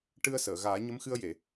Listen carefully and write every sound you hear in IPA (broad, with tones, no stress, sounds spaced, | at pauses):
ʈ ɨ˧ ə̯ s əː˨˩˨ ɣ aː˨˩˦ ɲ ə˧˥ m x ɨ˧ ə̯ j e˨˩˨